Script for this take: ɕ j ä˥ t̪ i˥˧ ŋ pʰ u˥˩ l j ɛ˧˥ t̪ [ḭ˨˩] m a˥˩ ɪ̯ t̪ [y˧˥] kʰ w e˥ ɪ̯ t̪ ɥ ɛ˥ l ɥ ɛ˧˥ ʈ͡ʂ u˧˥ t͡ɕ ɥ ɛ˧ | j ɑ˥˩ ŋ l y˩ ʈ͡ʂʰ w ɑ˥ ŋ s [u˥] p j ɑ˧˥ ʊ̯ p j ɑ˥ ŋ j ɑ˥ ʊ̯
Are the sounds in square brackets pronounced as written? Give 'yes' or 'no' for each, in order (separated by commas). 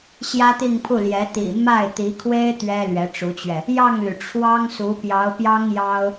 yes, no, no